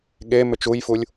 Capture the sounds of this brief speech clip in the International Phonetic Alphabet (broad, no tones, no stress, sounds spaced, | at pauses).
ɠ e m ʏ t͡ʃ u j f u lʲ